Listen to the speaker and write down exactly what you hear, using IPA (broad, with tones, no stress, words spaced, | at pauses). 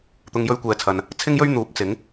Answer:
t̪ʊ˨ŋjɵ˧ɥkʷɛː˨t͡sʰɐ˨n | t͡sʰɪ˥ŋjɵ˥ɥ n̪uː˨˥p̚t͡sɪ˨˥ŋ